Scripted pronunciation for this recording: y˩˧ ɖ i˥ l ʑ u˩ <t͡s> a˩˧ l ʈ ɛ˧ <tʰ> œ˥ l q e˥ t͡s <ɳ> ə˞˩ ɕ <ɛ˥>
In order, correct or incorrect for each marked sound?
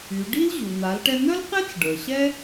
incorrect, incorrect, incorrect, correct

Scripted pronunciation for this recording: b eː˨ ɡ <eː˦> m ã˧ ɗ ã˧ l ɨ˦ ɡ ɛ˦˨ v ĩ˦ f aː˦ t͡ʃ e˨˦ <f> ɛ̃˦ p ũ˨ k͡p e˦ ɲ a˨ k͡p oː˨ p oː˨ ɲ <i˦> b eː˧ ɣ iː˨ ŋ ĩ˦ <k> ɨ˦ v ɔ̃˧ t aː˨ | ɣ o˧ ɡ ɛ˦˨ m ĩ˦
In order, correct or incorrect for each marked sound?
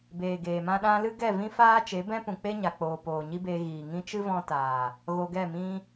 incorrect, incorrect, correct, incorrect

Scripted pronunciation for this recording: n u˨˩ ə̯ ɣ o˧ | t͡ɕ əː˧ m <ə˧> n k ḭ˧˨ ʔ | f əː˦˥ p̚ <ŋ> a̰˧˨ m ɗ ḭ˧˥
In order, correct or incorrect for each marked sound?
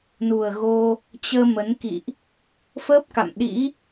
incorrect, incorrect

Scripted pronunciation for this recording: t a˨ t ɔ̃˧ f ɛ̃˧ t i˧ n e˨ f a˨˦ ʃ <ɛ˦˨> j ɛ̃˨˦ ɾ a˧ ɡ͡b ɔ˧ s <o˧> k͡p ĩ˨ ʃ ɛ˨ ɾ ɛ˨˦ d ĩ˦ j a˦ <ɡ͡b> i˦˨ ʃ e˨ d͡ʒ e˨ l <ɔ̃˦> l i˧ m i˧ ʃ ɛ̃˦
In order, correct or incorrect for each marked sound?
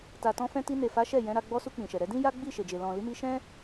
correct, incorrect, correct, incorrect

